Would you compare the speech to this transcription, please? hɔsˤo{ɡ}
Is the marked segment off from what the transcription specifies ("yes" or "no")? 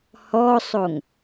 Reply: yes